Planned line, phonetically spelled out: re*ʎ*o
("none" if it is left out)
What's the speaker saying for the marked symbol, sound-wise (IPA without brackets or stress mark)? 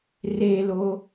l